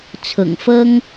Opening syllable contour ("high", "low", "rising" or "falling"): low